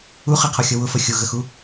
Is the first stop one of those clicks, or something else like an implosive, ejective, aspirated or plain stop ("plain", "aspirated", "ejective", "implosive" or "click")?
aspirated